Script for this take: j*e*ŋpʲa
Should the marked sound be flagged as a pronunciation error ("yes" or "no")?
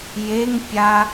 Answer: no